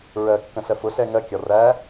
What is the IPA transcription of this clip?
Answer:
ɹ ɜ kː ə̃ ɬ ɜ f ʊ ɬ ɛ ŋ ɜ kʲ ɒ r æ

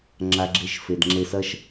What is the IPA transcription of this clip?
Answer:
ŋ͡ǁ a˧ ɡ͡ǁ e˧ ʃ f e˨ d ŋ͡ǁ e˧ s ɐ˦ ʃ

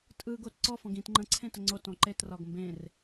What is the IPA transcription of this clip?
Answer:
tʼ ɯ ɡ o t ǀ ɔ f ɔ̃ ɡ ĩ t ŋ͡ǃ ə̃ ǀʰ ẽ t ə ŋ͡ǀ o t ɔ̃ ǃ e t r ɒ ɡ m b ẽ r

